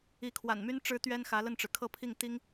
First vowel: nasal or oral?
oral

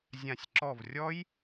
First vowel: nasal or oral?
nasal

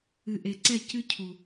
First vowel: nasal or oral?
oral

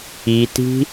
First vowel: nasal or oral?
oral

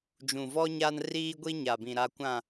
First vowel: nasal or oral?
nasal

